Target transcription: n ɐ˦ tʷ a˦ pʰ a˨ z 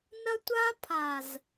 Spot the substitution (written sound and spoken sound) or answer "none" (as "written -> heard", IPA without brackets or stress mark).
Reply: none